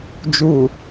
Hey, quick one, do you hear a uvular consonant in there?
no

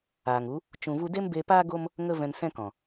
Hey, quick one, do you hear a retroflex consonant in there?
no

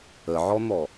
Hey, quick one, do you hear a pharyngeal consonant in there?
yes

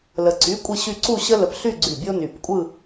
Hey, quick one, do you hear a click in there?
yes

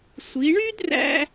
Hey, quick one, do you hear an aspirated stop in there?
no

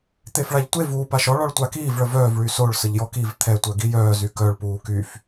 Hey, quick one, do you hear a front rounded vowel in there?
yes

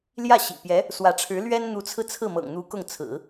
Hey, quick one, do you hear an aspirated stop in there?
yes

